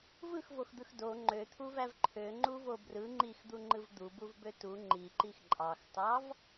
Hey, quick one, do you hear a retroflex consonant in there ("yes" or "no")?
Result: no